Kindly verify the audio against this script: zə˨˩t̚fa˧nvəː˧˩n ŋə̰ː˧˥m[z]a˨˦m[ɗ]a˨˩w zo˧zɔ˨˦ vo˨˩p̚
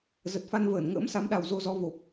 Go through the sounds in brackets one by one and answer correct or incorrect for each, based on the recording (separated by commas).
incorrect, correct